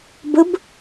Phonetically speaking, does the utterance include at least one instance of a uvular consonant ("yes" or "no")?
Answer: no